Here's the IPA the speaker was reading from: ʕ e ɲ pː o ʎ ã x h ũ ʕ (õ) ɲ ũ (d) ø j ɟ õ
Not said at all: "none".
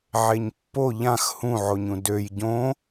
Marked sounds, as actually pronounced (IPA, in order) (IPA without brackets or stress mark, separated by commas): o, d